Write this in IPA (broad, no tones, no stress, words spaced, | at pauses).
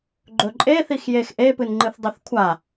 ɡ͡ǃɵǃʼe θixjexʔe pɨnŋ͡ǃɨθdˤɵθkʷʰa